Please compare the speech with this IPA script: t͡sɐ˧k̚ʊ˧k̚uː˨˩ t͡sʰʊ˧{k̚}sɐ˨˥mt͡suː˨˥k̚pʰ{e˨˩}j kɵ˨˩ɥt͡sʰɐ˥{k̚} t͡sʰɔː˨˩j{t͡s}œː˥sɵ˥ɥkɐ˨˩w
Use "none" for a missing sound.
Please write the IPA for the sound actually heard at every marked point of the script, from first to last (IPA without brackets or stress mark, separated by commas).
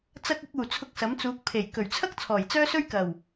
k̚, e˨˩, k̚, t͡s